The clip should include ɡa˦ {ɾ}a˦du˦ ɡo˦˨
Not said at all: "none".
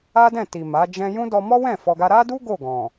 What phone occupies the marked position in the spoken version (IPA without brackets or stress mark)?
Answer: ɾ